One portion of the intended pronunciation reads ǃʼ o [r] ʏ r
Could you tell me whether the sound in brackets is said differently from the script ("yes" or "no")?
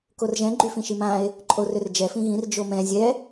no